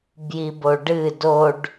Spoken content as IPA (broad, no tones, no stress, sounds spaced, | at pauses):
b j i b o ɖ ɨ d o ɖ